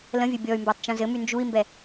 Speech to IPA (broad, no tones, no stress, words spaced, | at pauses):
lə̃vʲɘ bʲɔy̯mbatˤ t͡ʃũzɘmy nd͡ʒui̯mbɛ